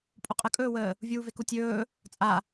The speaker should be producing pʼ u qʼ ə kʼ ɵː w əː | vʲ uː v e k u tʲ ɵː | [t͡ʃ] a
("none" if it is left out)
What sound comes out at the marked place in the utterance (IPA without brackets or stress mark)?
t͡sʼ